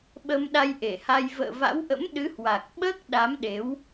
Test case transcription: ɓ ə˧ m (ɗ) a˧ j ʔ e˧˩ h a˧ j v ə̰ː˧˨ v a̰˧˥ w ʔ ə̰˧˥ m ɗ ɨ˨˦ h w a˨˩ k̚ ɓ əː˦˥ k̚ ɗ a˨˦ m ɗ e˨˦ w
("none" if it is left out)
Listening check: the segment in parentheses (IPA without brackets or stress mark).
ɗ